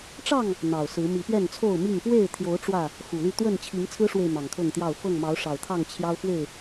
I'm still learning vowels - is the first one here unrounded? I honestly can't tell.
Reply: yes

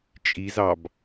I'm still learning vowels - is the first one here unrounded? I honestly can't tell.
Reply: yes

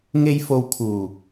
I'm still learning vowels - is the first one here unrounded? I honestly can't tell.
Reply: yes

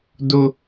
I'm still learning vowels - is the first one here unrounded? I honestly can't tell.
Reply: no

